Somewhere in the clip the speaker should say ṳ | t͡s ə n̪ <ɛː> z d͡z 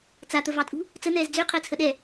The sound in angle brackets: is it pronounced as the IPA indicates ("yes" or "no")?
yes